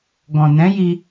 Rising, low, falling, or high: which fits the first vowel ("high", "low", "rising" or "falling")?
low